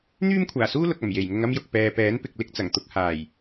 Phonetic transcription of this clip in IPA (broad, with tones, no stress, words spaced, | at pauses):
n̪yː˥mkʷʰaː˨˩suː˥ lʊ˨k̚ɐ˨˩m je˨˩jŋʊ˧ŋɐ˥mjʊ˨k̚ pɛː˨pɛː˨˥npɪ˨k̚ lɪ˥k̚t͡sɐ˨˩ŋt̪ʊ˧k̚ haː˨˩j